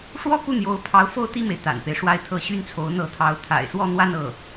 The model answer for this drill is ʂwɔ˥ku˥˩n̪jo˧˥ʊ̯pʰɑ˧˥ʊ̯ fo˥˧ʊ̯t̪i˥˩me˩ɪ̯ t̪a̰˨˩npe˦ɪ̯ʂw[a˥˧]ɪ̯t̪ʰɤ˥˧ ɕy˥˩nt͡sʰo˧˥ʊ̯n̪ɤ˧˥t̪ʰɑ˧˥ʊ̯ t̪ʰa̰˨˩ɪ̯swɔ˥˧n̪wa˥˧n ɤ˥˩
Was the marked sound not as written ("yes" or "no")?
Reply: no